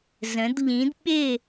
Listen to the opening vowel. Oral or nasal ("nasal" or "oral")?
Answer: nasal